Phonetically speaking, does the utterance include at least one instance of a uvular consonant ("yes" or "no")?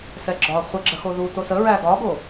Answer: yes